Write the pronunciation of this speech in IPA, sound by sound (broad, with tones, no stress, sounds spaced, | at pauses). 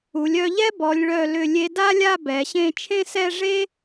u˩˧ lʲ œ˧ ʎ ɛ˥ b ɔ˩˧ lʲ ɭ œ˧˩ l ʏ˧˩ lʲ e˧ d a˥ lʲ a˥˧ b ɛ˩˧ ɕ ẽ˥˧ t͡ʃʰ ẽ˥ s ɛ˥˧ ʐ e˥